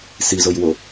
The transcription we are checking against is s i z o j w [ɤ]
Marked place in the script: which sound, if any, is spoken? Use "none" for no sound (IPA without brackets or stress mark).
o